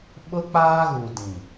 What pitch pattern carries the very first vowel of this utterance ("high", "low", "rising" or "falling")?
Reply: high